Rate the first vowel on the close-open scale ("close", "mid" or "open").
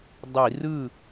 close